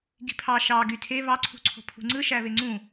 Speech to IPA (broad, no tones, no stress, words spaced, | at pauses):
ɡi̤pʰɑ ʃɑ ɡytʰe βɑǀʰṳǀʰo̤ pʰṳŋ͡ǀɯʃæ βeŋ͡ǀũ